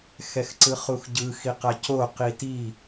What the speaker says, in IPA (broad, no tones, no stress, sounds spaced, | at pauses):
x ɛ x ǀ ɯ χ u x ɟ ɯ x i q a c o q i t i